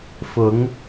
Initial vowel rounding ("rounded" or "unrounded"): rounded